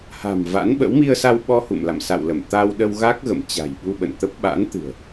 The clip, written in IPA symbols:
ha̤˨˩mva̰˧˥nɓə̰˧˥w mi˧ə̯sa˧w ɓɔ˧hṵ˧˨mla̰˧˨m sa̰˧˨wlə˧˩m t̪a˧wɗə˧wɣa˦˥k̚ɣə̰˧˨m t͡ɕa̤˨˩jɓu˧ɓə̰˧˨nt̪ə˦˥p̚ ɓa̰˧˥nt̪ɨ̤˨˩ə̯

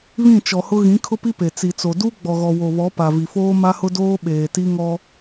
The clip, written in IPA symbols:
βĩ˦˨t͡ʃɔ˨hʊ˦ ɣĩ˨˦ kʰʊ˦pi˦ pe˨ t͡si˨t͡so˨ du˦ ɡ͡bɔ˨ɣɔ˨wo˨βɔ˨˦ pa˨vi˨foː˦ ma˦hʊ˦doː˦ ɓeː˨ti˦ŋɔ˦

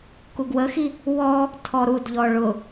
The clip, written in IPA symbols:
kuɡwəxi | wɔ | tʰɔɾudʎɔ ɭʊ

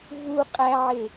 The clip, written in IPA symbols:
vu qʼæʕe

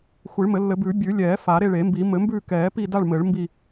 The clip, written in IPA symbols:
xʷi˨˩˦ɭmɘ˨˩˦lːɘ˨˩˦bʉː˨˩˦ bʲʉ˨˩˦lʲɛː˨˩˦ fa˨˩˦ɾe˦˨ɭe˨˩˦mbi˨˩˦ mɘ˨˩˦mbʉː˦˨ kɛː˨˩˦ pi˦˨da˦˨ɭ mɘː˨˩˦ɭmbi˦˨

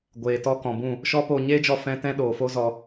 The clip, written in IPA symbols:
ɡʷeː˨tɔ˧ kɔ̃˨bũ˦˨ | ʃɔ˦poː˧ ɲeː˦d͡ʒɔ˧ fɛ̃˦ tɛ̃˦ɗoː˨fo˦zɔ˧

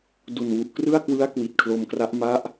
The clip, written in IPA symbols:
du˨˩nwu˨˩ʔ krɯ˥˩a̯kwɯ˦˥a̯ kwi˨˩t̚kʰlo˧mkra˦˥ʔ ma˦˥ʔ

